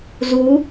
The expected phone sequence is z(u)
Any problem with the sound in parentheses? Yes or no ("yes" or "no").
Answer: no